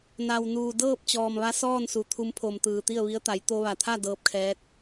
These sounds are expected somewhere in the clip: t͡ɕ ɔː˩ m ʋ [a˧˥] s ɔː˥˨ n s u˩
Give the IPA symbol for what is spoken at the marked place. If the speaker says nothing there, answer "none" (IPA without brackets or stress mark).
a˧˥